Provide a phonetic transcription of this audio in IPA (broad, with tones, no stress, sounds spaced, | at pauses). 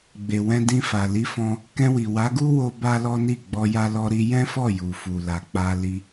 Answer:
ɡ͡b e˨ w ɛ̃˧ d ĩ˧ f a˨ l i˨˦ f ɔ̃˧ | k ɛ̃˧ w i˨ w a˨˦ ɡ u˦ w o˧ b a˦ l ɔ˦ n i˦˨ ɡ͡b ɔ˧ j a˧ l ɔ˧ ɾ i˧ j ɛ̃˦ f ɔ˦˨ j u˨ f u˨ l a˨ k͡p a˧ l i˧